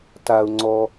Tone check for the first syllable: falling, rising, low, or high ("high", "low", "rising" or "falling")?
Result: low